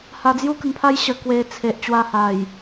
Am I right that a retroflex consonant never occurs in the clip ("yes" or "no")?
yes